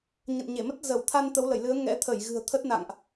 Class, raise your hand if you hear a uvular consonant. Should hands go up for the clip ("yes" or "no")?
no